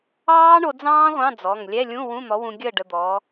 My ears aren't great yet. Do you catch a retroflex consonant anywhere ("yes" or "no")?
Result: yes